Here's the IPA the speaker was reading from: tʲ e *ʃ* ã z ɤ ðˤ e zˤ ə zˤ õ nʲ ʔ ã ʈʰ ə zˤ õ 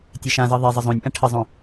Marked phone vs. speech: correct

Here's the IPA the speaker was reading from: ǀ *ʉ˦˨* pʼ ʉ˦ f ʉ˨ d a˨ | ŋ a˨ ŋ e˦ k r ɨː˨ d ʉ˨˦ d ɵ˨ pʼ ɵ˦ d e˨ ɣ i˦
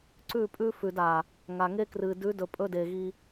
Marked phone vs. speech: correct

